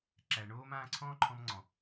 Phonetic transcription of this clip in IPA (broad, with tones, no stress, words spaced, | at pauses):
ǁæ˨ɳoː˧m ãː˧ǀʰɔ̃ː˦ǃʰɔ̃˧mŋ͡ǀɔ̃˨